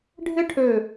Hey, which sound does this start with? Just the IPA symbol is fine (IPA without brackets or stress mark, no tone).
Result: ɖʱ